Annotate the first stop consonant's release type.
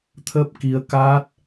aspirated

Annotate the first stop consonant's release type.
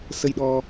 implosive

